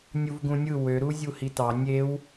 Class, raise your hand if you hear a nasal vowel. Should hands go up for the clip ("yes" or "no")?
yes